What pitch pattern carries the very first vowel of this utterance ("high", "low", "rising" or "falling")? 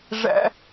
high